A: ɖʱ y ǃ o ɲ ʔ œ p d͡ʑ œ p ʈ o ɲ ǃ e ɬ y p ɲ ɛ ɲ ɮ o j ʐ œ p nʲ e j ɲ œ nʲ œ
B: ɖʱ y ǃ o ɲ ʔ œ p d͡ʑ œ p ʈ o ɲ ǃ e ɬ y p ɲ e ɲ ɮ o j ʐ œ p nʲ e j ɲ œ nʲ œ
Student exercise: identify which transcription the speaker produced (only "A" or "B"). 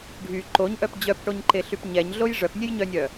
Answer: A